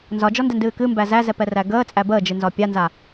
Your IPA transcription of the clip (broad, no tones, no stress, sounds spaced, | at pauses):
n z ɒ d͡ʒ ɔ n d ɛ n d ɨː k ɨ m b æ z æ z ɛ p ɛ r æ ɡ əː t͡sʼ æ b əː d͡ʒ ɨ n z ɒ pʲ a n z a